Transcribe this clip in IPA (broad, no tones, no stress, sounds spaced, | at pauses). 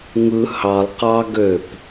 ŋ ɯ h ɑ lˠ q ɑ ɡ ø p